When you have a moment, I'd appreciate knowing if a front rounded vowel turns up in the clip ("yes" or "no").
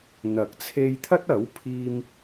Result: no